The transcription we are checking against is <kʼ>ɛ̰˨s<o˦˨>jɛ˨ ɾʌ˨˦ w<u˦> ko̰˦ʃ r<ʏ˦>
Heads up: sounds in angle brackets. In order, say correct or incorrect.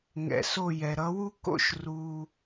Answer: incorrect, correct, correct, incorrect

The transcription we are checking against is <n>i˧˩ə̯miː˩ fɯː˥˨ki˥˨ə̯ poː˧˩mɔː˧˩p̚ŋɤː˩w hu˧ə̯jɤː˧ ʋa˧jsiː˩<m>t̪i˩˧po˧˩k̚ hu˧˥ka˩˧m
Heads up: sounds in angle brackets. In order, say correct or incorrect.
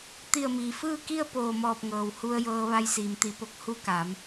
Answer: incorrect, correct

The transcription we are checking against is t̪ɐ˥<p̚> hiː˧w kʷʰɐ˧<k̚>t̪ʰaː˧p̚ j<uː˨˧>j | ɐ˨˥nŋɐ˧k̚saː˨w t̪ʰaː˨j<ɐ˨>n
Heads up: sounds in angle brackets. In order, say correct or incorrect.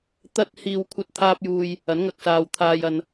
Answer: incorrect, incorrect, incorrect, correct

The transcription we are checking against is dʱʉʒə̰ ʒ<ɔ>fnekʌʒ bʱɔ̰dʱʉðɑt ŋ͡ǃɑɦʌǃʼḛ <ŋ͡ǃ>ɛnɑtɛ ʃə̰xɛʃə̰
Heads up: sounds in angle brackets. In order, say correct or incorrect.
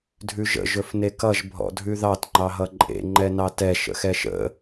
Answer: incorrect, correct

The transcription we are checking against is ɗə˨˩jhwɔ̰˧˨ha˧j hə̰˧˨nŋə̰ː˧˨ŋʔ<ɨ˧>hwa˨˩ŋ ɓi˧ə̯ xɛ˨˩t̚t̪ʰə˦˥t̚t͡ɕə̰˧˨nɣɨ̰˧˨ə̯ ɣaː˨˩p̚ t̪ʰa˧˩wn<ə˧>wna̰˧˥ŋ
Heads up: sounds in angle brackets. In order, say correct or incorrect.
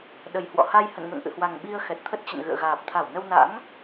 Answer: incorrect, correct

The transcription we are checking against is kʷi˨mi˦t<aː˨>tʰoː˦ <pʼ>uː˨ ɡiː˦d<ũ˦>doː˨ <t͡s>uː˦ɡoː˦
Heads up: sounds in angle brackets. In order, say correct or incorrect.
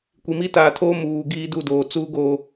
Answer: correct, incorrect, incorrect, correct

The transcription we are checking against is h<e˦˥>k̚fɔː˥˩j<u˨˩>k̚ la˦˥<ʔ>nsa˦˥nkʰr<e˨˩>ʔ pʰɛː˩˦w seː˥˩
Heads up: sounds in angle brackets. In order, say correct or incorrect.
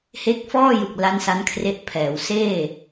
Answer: correct, incorrect, incorrect, incorrect

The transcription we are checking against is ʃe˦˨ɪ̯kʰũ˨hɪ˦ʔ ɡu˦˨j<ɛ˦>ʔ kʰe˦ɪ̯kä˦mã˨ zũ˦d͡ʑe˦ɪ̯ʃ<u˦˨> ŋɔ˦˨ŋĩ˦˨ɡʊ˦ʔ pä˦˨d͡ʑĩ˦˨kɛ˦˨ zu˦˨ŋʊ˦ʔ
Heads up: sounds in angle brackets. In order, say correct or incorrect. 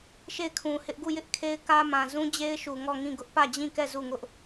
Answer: incorrect, incorrect

